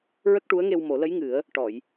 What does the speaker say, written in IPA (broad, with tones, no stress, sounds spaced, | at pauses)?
ɹ ə˦˥ k̚ ʈ u˧˥ ə̯ ŋ e˧ w m o˨˩˦ l ə˧˥ j ŋ ɨ˨˩˦ ə̯ | ʈ ɔ˨˩˨ j